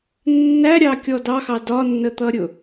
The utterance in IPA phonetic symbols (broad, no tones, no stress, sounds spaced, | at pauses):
nː æ ɾʲ ɑ kʲ ɔ d ɑ x ɑ d ɒ nː ə t̪ ʌ ɾʲ ʊ